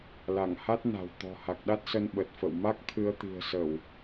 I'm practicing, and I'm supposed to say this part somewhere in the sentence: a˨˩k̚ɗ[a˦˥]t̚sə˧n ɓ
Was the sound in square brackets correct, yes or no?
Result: yes